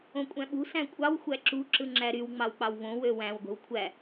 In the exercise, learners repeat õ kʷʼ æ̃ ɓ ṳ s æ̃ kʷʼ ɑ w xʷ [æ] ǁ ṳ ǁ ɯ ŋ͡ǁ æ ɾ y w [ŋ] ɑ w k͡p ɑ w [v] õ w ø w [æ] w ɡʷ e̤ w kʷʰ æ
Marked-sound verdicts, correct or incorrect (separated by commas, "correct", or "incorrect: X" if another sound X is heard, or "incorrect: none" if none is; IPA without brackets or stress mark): correct, incorrect: ŋ͡m, correct, incorrect: æ̃